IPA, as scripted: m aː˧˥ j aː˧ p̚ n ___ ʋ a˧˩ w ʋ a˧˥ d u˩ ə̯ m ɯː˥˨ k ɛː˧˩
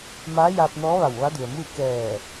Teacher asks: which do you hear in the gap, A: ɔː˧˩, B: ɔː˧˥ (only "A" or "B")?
B